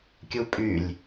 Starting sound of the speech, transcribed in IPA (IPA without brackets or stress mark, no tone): kʲ